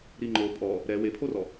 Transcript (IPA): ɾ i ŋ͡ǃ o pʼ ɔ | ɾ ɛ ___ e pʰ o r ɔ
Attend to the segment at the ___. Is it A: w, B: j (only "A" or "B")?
A